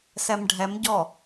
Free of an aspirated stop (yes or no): yes